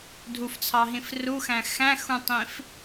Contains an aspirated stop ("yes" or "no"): yes